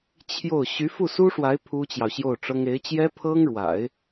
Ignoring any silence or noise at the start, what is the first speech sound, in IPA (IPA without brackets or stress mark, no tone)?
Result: t͡ɕʰ